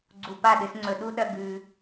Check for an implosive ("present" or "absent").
present